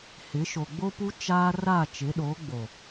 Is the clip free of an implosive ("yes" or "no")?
no